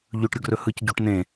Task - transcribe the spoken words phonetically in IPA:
ʎ ɵ ʈ ɾʲ ʊ ɡ r ɵ h ɯ c ɟ o ʈ n ẽ

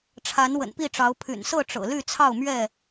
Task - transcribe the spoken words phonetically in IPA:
ʈ͡ʂʰ a˨˦ n w ə̰˨˩ n p i˥˨ ʈ͡ʂ ɑ˨˦ ʊ̯ pʰ y̰˨˩ n s ɤ˥˨ ʈ͡ʂ ɤ̰˨˩ l y˥˨ t͡sʰ ɑ˥˨ ʊ̯ m ɥ ɛ˥˨

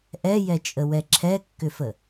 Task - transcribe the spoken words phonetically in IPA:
ʔ ɛ j ɛ t͡ʃʼ ə w ɛ ǁʰ ɛ kː ʏ f ə

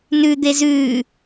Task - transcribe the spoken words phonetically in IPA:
n ʉ d̪ e z ʉ

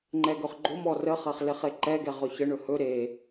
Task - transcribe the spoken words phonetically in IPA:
ŋ͡ǃ ɛ ɡ ɵ χ ɡ͡ǃ o m ɔ r ə χ ɐ χ l e χ e ǃ ɛ ɡ ɛ ʁ ɵ ç ə ɳ ɵ h ɵ ɾ e

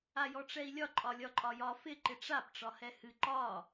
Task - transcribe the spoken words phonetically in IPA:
a j ɔ ʈ͡ʂ ɛ i̯ lʲ ɒ ǃʼ ɒ lʲ ɒ ǃʼ ɒ j ɒ f ɪ ǃ ɪ ʈ͡ʂ a p ʈ͡ʂ ɒ h ɛ h ɨ ǃ ɒ

